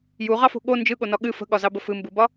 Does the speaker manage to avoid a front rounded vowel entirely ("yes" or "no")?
yes